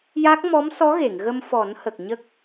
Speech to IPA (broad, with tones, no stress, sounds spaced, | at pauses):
j a˦˥ k̚ m ɔ˧˥ m s ɔ˧˥ ɣ e˨˩˨ ŋ ɣ ə˧ m f ɔ˨˩˦ n h ə˨˩ k̚ ɲ ə˦˥ k̚